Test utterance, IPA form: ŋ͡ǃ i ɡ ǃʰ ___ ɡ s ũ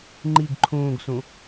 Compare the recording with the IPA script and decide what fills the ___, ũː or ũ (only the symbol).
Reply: ũː